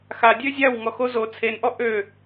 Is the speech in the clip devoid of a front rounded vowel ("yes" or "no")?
no